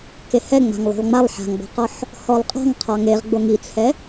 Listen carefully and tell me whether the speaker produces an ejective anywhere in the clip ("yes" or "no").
yes